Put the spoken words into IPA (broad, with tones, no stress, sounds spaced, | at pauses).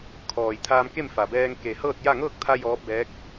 kʰ ɔː˩ j t̪ʰ aː˧ m k e˥˨ m f a˩ b ɛː˧ ŋ k e˩ h ɤː˥˨ t̚ j a˥˨ ŋ ɤː˥˨ k̚ t̪ʰ a˧ j ɔː˧˥ p̚ b ɛː˧˥ k̚